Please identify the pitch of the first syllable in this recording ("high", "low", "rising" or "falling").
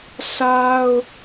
high